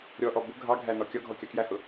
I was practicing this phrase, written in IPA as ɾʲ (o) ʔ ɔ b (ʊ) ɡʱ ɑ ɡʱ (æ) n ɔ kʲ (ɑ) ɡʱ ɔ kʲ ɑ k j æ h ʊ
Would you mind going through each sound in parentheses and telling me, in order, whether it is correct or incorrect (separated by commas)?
incorrect, correct, correct, incorrect